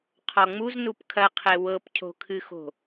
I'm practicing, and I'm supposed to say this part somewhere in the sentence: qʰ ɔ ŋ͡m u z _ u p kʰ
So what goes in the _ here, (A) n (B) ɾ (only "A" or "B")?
A